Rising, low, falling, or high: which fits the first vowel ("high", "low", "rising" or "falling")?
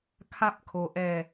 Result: falling